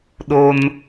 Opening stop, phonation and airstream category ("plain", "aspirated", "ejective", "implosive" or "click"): implosive